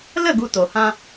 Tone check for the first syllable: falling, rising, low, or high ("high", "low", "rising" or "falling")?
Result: falling